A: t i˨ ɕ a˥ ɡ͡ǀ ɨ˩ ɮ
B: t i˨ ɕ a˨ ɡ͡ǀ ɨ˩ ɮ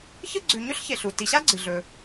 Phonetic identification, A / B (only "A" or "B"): A